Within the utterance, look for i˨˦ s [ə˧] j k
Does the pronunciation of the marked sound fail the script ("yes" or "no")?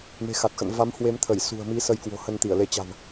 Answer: no